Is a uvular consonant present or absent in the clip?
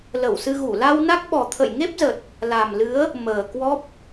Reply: absent